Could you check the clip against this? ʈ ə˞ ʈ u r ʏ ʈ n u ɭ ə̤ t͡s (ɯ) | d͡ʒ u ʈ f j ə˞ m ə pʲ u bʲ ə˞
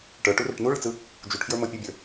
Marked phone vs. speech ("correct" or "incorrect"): correct